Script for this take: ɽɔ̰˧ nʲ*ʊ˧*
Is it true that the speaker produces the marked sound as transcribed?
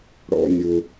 yes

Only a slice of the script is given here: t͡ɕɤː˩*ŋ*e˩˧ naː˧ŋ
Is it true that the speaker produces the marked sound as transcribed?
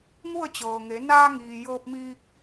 yes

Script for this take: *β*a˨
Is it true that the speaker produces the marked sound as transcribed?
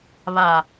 yes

